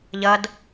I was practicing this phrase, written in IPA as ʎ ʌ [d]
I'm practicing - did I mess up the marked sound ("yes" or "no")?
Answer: no